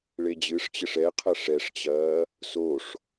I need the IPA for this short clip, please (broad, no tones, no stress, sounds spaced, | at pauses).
ɭ e d͡ʑ ɨ ʂ t͡ɕ ɘ ʂ ɛ qʰ ɐ ʂ ɛ ʂ t͡ɕ ɐː | s o ʂ